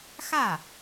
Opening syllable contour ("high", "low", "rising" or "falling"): falling